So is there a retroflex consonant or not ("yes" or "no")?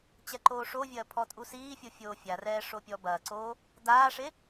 yes